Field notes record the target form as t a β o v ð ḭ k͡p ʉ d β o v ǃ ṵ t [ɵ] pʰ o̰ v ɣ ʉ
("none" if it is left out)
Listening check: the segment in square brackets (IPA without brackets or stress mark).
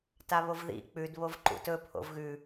ɵ